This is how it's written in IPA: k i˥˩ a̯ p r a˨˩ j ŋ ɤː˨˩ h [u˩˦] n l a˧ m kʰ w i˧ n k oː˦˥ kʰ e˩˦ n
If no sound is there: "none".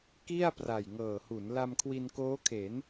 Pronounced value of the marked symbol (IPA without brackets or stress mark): u˩˦